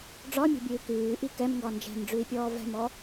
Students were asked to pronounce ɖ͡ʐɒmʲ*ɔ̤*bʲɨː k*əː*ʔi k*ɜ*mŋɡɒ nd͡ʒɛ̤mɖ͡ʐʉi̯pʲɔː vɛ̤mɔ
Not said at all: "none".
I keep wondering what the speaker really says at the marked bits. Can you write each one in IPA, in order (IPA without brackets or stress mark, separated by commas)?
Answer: ɔ̤, ʉː, ɛ